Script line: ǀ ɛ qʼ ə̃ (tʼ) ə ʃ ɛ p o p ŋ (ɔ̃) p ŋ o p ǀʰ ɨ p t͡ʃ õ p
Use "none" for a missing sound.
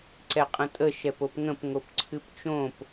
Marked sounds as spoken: tʼ, ə̃

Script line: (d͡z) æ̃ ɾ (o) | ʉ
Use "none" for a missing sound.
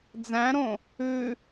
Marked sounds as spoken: d͡z, õ

